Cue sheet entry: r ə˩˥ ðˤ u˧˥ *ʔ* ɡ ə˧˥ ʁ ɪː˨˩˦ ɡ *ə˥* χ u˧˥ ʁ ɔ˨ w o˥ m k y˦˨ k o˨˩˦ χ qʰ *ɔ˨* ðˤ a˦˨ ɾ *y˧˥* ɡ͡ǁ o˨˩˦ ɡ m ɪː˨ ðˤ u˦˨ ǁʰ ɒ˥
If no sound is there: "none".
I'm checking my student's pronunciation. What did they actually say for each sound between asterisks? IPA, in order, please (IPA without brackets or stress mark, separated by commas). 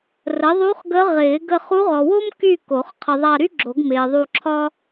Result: χ, ə˦˨, ə˨, y˥